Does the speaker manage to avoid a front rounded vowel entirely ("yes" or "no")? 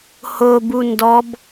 yes